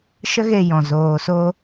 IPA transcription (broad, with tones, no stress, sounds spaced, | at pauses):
ʃ ə˦ ɣ e˧ j ɔ̃˨ z oː˨ s o˧